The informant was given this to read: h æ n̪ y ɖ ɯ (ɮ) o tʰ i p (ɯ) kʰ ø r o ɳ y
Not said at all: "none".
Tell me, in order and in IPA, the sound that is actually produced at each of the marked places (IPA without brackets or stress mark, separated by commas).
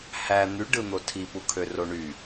n̪, u